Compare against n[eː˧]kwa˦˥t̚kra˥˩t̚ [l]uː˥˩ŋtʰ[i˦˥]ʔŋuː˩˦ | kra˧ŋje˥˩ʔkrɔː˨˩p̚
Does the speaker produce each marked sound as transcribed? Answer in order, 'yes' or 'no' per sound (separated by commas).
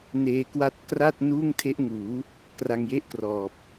yes, no, no